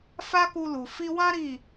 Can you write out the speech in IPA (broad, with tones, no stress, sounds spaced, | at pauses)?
f a˦ k u˧ l u˨ f i˧ w ã˦ ɾ i˦˨